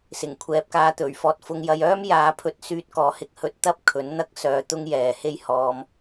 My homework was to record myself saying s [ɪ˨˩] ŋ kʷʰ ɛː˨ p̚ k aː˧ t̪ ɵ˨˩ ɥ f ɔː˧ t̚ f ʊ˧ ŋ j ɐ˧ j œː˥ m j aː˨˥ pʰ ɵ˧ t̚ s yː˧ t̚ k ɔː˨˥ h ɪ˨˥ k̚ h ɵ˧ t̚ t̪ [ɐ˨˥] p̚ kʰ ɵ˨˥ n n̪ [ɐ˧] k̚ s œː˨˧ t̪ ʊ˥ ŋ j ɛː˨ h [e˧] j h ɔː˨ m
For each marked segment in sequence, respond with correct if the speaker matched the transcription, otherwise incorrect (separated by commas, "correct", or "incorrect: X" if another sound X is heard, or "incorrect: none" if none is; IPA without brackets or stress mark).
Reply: correct, incorrect: ɐ˥, incorrect: ɐ˥, incorrect: e˥